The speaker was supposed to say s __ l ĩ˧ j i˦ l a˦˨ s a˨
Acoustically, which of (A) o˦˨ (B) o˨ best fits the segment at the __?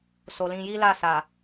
B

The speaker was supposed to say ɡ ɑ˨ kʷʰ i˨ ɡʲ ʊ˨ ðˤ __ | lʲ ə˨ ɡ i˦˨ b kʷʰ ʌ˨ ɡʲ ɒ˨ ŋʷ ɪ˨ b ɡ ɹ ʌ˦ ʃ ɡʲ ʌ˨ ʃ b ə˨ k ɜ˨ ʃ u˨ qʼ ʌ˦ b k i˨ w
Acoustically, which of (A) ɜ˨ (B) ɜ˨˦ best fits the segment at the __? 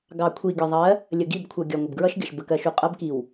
B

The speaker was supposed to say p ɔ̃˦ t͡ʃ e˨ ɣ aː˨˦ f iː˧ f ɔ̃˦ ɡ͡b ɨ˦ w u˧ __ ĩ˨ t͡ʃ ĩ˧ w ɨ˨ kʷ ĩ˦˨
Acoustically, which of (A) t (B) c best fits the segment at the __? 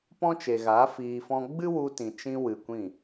A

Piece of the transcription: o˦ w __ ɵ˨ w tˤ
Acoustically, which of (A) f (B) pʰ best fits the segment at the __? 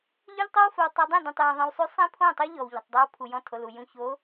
A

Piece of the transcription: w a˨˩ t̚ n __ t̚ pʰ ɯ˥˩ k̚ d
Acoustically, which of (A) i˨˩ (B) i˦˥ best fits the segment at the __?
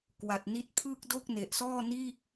B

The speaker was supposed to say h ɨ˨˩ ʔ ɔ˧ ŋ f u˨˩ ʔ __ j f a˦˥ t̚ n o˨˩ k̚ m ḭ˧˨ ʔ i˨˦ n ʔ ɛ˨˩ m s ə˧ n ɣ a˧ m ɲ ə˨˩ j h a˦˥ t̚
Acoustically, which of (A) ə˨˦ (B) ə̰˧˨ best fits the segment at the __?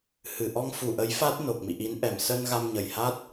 A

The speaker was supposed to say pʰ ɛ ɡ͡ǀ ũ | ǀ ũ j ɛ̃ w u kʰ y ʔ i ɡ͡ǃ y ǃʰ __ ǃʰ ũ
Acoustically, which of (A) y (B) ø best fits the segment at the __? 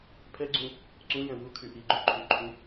A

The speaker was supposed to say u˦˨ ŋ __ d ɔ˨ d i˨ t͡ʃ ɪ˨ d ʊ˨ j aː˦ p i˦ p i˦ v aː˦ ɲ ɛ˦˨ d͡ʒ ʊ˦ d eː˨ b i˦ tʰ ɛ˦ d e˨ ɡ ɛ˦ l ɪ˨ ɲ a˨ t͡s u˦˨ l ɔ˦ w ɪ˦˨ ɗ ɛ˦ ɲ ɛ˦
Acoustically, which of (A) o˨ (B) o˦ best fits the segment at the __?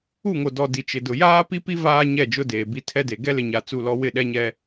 A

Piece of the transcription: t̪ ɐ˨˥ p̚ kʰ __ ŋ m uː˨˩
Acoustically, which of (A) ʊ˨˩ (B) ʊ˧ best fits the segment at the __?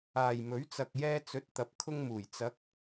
B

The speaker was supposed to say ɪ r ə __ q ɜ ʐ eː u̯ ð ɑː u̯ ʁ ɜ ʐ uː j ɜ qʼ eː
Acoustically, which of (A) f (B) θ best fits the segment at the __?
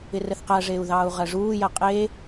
B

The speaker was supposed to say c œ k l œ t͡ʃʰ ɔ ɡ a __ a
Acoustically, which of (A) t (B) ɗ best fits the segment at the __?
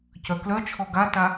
A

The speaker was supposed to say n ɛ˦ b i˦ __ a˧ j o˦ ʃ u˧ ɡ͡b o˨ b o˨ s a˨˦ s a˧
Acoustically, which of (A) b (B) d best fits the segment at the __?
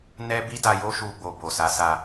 B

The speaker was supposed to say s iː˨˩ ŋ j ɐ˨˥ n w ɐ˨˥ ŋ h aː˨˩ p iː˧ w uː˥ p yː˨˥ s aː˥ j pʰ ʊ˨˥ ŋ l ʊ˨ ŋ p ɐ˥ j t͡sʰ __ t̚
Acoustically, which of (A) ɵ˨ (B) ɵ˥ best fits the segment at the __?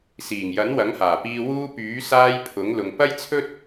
B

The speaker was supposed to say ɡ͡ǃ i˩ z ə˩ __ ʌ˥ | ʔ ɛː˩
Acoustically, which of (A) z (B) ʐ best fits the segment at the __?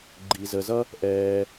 A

